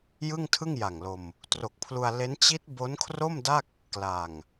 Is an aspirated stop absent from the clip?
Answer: no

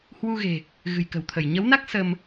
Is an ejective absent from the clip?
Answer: yes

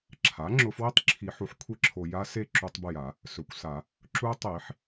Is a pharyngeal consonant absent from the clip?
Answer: no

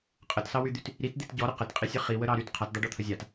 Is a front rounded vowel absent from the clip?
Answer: no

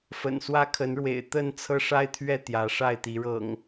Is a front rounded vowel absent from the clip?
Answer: yes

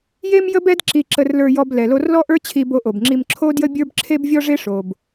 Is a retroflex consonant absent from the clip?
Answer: no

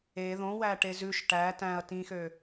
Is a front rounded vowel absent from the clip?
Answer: no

